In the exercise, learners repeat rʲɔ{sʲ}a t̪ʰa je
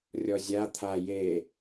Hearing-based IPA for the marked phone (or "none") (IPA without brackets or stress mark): zʲ